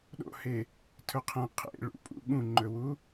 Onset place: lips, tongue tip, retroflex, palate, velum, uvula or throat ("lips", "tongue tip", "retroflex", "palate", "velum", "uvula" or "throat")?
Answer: tongue tip